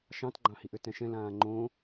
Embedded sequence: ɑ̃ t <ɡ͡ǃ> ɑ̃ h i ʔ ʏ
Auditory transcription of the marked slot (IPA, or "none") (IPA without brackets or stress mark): ɡ͡ǃ